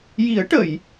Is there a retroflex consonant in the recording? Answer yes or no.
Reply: yes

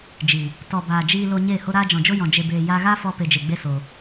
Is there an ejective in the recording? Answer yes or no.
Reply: no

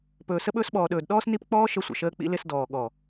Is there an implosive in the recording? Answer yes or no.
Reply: yes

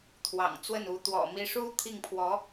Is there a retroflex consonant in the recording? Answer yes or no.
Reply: yes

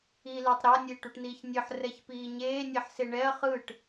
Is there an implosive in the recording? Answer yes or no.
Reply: no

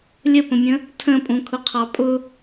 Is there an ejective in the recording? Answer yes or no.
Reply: yes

